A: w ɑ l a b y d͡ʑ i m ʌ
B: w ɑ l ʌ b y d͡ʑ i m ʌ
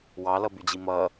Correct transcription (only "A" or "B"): B